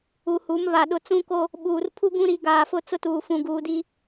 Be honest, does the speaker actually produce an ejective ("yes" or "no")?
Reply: no